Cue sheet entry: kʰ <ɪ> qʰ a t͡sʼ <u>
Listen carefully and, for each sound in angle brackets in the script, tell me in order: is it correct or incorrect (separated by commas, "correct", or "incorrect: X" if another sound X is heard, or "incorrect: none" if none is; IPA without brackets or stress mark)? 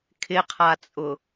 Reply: correct, incorrect: ʊ